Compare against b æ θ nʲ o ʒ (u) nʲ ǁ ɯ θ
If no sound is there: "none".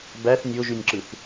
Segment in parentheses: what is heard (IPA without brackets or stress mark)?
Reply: y